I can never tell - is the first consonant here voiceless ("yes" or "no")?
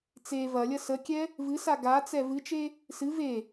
yes